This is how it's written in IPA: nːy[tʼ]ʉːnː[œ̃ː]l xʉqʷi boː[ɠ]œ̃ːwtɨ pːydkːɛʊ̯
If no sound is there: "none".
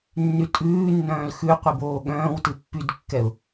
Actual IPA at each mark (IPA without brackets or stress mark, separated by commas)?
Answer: tʼ, œ̃ː, ɠ